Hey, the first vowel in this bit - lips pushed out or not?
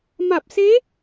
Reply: no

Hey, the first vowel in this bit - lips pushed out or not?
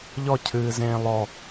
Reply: yes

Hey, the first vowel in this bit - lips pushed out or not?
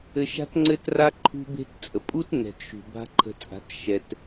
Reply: no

